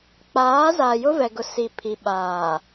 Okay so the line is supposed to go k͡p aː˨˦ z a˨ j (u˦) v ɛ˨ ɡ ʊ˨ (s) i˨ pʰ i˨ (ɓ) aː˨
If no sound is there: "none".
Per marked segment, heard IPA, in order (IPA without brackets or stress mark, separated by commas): ʊ˦, s, ɓ